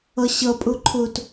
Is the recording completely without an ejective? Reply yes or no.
no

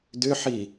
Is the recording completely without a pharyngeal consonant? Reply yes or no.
no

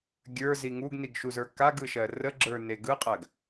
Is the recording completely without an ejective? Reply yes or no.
no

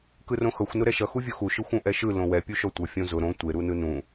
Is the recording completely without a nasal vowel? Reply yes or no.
no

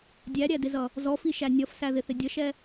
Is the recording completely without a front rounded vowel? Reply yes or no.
yes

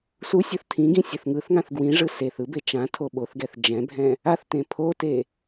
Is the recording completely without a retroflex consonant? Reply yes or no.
no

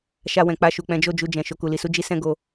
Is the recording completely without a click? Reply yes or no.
yes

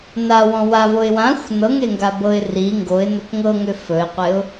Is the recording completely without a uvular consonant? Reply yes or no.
no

